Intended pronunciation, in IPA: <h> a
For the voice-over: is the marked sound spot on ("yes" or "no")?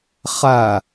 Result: no